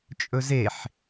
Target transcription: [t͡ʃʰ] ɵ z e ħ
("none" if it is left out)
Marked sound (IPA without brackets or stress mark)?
t͡ʃʼ